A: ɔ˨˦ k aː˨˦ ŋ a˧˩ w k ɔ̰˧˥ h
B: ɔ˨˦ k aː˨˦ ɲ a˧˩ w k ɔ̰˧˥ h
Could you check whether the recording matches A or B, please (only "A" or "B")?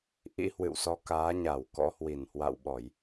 B